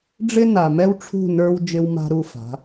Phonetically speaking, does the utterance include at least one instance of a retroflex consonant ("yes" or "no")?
yes